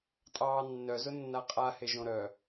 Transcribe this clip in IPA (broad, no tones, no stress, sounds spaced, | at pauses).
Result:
tʼ ɑː nː œ z ʊ nː a qʼ a h e ʒ õ ɾ œ